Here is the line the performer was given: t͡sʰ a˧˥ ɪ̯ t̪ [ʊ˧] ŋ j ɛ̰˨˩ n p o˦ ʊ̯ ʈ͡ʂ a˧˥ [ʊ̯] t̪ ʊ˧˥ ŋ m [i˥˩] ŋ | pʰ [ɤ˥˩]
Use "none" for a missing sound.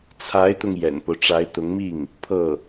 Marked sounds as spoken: ʊ˧, ɪ̯, i˥˩, ɤ˥˩

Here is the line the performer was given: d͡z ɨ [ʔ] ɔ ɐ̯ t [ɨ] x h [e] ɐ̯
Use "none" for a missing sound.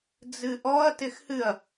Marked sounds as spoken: ʔ, ɪ, ɨ

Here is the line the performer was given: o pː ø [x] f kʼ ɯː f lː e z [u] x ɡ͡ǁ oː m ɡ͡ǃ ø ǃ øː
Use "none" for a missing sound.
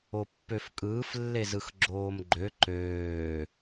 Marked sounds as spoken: none, ɯ

